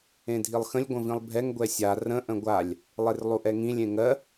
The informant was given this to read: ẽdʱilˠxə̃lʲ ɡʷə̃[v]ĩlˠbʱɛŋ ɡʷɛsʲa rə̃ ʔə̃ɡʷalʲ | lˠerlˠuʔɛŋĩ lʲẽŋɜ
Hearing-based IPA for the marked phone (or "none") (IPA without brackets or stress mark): v